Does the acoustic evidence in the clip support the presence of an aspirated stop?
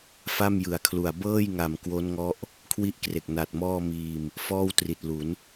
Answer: yes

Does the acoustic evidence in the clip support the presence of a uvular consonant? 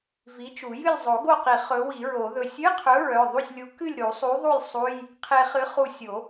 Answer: yes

